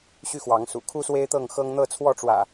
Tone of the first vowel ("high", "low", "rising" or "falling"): high